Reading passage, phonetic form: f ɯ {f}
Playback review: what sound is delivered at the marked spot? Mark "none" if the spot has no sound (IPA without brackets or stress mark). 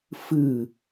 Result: none